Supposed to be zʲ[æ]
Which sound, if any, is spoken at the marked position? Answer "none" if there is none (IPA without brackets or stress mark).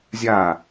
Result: a